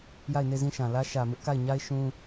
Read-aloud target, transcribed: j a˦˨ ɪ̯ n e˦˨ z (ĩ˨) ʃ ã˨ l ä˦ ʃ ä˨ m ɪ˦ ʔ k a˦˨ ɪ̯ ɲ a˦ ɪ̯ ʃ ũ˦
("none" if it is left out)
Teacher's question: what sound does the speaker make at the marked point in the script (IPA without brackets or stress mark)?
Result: ĩ˦˨